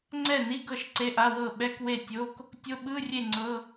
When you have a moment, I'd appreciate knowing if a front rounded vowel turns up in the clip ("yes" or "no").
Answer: no